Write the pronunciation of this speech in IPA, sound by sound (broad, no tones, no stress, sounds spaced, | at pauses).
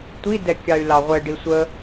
tʷ i d ɛ kʲ ɑ y̯ l ɑ ʁʷ ɛ ɖ i sʷ ə